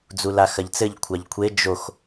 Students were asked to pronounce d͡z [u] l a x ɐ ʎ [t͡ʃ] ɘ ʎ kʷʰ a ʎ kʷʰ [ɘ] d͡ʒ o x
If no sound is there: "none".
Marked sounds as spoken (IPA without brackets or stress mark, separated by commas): u, t͡s, e